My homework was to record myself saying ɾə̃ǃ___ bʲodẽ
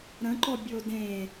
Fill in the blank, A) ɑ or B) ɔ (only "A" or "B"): B